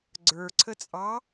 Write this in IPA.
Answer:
ɡ͡ǀ ə˞ ǀʰ ə t͡sʼ ɑ

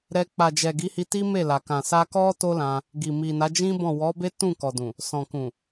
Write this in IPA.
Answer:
ɾ ɛ˧ k͡p a˨ d͡ʒ ɛ˨ ɡ i˨˦ h i˧ t i˦ m e˦˨ l a˨ k ã˨ s a˧ k ɔ˦ t o˦ l ã˧ | ɡ i˨ m i˨ n a˨˦ d͡ʒ ĩ˦ b ɔ̃˦˨ w ɔ˨˦ b e˦ t ũ˦˨ k ɔ˨ d ũ˨ | s ɔ̃˨ k ũ˨

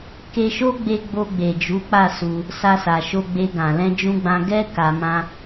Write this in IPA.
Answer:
k e˧ ʃ o˦ ɡ͡b e˧ ɡ͡b o˧ ɡ͡b e˨ d͡ʒ u˨˦ k͡p a˦˨ s u˧ | s a˧ s a˨ ʃ o˧ ɡ͡b e˧ ɡ ã˨ l ɛ̃˧ d͡ʒ ũ˧ ɡ͡b ã˧ ɡ ɛ˦ k a˧ m ã˦

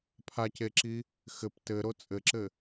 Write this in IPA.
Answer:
pʰ a c e ǁ i | x ɘ p t ɘ ɾ o t͡sʼ ɘ ǁ ɘ

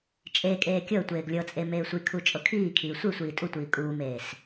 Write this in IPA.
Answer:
t͡ʃʼ e kʼ eː kʲ ɤ ə̯ tʷ eː ɡ lʲ ɤ t͡sʼ e m eː sʷ i kʰ u t͡ʃʼ ɤ kʰ iː kʰ iː sʷ i sʷ iː tʼ u tʷ iː kʼ uː m eː s

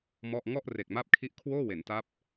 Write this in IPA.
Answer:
m ɔ˥˩ ʔ ŋ ɔ˥˩ ʔ r e˨˩ k̚ m a˦˥ p̚ kʰ i˦˥ ʔ kʰ w oː˥˩ w e˩˦ n t a˦˥ p̚

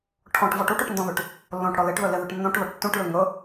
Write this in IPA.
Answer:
ʈʰ ɔ̃ ʈ v ɔ ʈ u ʈ u ʈ n d ɔ̃ ð ʉ ʈ | lː õ ʈ ɽ ɔ l e ʈ ð ø l e ð ø ʈ nː õ ʈ ð ɔ ʈ tː ũ ʈ l ʉ ŋ ɵ

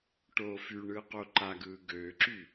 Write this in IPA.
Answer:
ʈ oː f y ɳ ɯː q o ǃ a ɡ ɯː ɡ øː ǁ y

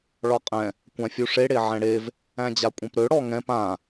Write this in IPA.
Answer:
ɭ ɒ qʼ ɛ̃ | kʷ ã fʲ u ʂ e ɽ e ʕ ɛ̃ ɽ e v | æ̃ d͡ʑ a kʷʼ ɛ̃ p ɾ ø ɽ ɔ ŋ ɛ̃ p ã

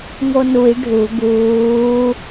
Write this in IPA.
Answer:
ŋ o n u j ɖʱ u ɡ uː

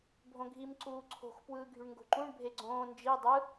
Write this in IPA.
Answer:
bʱ õ ɡʱ i m ǀ uː ǀʰ o̤ x p w ɯː ɡʱ y ɳ ŋ ɡ o̤ ǃ ũ ɳ bʱ e ɡ͡ǀ õː n d͡ʒ i dˤ ɯ

